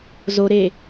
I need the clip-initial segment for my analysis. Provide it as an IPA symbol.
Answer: z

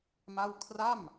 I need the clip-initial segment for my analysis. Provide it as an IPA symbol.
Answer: m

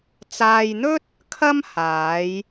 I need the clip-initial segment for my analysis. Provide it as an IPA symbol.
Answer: t͡s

